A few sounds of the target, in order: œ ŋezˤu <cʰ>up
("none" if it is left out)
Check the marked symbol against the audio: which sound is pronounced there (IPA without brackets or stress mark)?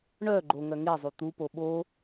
t̪